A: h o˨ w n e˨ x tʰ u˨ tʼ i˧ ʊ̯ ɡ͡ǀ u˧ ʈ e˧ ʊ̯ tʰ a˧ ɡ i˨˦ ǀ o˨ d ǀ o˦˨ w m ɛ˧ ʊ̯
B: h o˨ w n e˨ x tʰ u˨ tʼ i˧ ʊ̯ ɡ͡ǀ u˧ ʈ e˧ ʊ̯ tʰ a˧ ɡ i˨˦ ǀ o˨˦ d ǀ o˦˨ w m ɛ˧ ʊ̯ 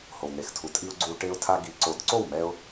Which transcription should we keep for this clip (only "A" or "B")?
B